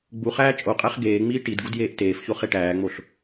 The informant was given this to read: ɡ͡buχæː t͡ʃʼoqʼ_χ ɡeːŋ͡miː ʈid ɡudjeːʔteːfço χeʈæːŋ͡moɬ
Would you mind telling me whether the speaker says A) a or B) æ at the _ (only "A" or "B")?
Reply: B